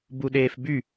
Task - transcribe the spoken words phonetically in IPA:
b u ɗ eː f b y

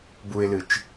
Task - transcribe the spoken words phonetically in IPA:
b u ɪ̯ l ɨ t͡ʃ

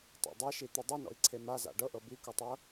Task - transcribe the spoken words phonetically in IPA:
tˤ a̰ dˤ a ʃ i t̪ u dˤ i n ɔ̰ i̯ ǀʰ e m a z a̰ ɖ ɤ ʔ ɤ b i k u tˤ ɤ

